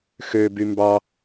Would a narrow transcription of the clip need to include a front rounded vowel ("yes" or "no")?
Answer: yes